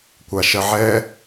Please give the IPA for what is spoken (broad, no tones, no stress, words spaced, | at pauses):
kʷaʃɜʕɛ